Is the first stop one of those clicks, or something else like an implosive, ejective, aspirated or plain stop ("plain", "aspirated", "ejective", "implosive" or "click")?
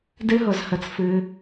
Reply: plain